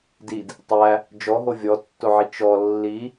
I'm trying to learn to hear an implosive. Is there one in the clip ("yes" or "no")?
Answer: no